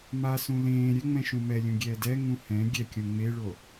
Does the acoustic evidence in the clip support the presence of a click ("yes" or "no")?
no